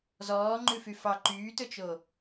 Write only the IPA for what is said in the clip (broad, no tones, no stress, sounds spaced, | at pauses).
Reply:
z ɔː ŋ͡ǃ ʉ f y f ɑ ǃ yː t ɵ t͡ʃ o